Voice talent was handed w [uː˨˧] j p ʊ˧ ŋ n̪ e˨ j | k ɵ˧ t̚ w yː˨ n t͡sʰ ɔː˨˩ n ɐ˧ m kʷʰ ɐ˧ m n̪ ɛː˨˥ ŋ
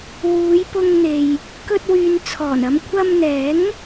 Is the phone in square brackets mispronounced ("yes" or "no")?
no